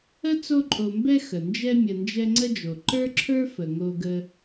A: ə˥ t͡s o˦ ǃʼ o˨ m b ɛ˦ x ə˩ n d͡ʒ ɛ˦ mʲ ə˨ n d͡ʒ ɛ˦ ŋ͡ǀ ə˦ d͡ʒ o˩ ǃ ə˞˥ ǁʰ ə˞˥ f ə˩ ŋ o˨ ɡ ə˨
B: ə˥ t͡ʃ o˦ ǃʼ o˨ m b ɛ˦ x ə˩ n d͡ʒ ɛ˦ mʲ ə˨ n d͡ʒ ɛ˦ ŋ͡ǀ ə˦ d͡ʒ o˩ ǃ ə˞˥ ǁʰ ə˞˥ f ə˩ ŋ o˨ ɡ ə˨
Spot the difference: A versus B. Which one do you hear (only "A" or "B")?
A